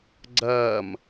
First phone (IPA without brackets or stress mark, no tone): ɡ͡ǀ